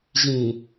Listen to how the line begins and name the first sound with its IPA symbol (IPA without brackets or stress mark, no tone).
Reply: ʑ